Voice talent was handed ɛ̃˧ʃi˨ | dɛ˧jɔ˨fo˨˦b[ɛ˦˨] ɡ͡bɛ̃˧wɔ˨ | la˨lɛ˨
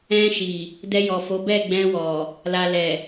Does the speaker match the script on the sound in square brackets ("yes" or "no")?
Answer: yes